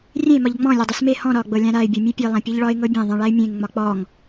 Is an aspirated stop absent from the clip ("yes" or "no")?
yes